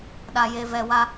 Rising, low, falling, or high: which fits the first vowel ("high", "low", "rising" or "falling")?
low